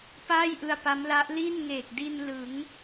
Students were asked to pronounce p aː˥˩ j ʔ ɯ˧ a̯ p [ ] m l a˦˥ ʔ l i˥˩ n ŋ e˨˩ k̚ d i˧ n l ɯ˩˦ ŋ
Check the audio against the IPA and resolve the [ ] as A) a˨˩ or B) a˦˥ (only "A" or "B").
B